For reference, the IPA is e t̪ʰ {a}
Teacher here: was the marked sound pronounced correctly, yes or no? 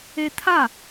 yes